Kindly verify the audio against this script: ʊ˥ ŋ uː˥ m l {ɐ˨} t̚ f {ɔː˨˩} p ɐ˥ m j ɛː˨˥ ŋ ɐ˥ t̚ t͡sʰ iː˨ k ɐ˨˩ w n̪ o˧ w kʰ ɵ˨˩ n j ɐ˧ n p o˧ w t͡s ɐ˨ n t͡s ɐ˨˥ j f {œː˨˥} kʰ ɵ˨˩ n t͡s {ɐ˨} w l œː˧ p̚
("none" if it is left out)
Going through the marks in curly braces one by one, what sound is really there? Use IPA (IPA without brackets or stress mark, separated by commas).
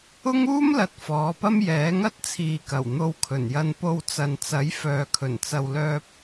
ɐ˨, ɔː˨˧, œː˨, ɐ˨